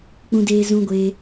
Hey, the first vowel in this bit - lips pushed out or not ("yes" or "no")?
yes